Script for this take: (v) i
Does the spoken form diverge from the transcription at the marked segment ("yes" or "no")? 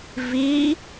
no